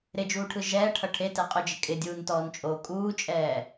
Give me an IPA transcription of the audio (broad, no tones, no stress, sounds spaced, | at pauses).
ɾ ɪ d͡ʒ uː ʈʰ ɯ ʒ ɛː ʈʰ ʌ ʈʰ e t ɛ qʼ o d͡ʒ ɪ kʼ ɪ dʲ uː n t ɔː n t͡ʃʼ oː kʼ uː t͡ʃʼ ɛː